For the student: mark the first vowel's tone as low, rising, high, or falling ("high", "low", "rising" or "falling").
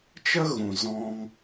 high